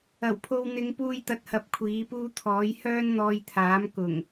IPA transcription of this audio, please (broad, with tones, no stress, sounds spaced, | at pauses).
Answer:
ɐ˨˩ w pʰ o˧ w n̪ ɪ˨˧ ŋ p uː˧ j t̪ ɐ˨˥ t̚ h ɐ˨˥ p̚ kʷʰ iː˨˥ p uː˥ t̪ʰ ɔː˨˥ j h œː˥ n n̪ ɔː˧ j t̪ʰ aː˨˥ m k ʊ˨˩ ŋ